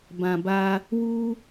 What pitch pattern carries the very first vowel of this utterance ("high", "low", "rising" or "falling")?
low